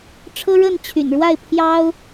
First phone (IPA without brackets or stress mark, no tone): ʈ͡ʂʰ